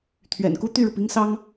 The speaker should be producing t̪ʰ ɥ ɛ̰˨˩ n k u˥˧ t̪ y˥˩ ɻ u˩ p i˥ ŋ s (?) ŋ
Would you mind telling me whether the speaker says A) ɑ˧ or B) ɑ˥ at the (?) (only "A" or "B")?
B